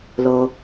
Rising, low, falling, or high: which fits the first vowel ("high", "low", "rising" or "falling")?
low